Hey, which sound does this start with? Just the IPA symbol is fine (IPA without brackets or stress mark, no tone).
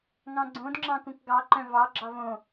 ŋ